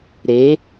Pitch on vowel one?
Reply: rising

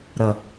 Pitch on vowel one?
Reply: low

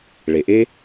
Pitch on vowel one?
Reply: low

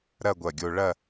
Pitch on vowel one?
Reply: falling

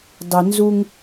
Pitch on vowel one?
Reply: low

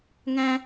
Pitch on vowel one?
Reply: high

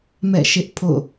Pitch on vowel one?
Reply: falling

